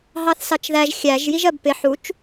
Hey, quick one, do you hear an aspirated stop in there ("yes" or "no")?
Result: no